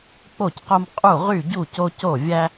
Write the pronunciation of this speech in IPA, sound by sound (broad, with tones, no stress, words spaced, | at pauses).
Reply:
k͡po˥˩cqo˦m qʼu˥˩ʁy˥˩ɟu˥˩ co˦co˥˩vʲæ˦